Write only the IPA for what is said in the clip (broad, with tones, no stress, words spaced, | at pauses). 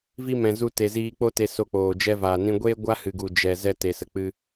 vi˧mɛ̃˨ zu˧te˨ziː˧k͡po˦ te˧so˧k͡poː˨ d͡ʒɛ˧vaː˨nĩ˧ɡʷeː˦ ɡʷa˦hɨ˨ɡu˨ d͡ʒɛ˨ zɛ˧te˨sə˨k͡pɨ˧